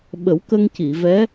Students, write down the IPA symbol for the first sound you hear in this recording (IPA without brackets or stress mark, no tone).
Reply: ɓ